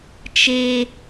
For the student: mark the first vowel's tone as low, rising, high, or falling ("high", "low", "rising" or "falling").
high